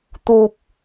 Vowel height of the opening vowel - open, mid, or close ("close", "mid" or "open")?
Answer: close